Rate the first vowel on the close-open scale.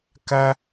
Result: open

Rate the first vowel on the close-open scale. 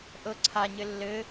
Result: mid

